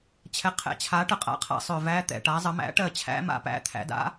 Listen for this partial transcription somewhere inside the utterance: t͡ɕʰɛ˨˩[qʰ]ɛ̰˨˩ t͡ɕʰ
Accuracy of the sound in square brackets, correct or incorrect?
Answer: correct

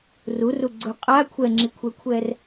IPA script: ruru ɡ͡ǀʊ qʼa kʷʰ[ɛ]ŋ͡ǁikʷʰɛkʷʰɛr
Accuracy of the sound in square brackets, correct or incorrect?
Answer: correct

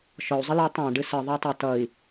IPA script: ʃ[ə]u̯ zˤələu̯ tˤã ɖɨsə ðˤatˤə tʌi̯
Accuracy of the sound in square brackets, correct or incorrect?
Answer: incorrect: ɔ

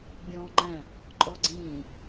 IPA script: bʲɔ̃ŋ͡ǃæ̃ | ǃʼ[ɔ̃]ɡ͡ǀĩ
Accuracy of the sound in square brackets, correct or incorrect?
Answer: incorrect: ɔ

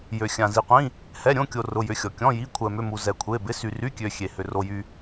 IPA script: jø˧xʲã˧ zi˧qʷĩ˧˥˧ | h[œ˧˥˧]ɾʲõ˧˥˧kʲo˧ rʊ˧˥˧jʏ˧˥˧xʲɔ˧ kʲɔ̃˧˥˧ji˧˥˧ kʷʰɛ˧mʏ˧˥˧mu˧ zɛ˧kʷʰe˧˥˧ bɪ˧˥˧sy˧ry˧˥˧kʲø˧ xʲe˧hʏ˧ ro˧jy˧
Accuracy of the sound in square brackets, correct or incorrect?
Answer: incorrect: ɛ˧˥˧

